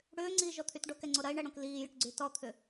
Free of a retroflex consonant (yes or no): no